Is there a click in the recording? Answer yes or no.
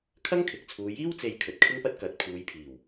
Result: no